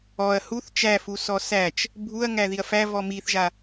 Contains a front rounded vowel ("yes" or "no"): no